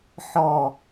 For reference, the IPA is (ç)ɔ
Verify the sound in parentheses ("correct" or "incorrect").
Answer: incorrect